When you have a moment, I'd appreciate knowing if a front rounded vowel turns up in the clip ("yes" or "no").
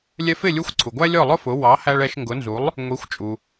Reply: no